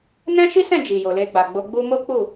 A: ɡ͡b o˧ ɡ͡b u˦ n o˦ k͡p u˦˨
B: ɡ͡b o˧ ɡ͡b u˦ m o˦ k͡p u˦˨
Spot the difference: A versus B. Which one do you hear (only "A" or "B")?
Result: B